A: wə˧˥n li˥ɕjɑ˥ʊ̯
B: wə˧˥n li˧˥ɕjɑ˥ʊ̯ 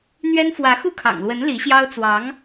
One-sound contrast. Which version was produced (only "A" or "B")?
B